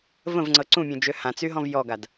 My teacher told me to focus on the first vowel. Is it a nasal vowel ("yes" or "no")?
yes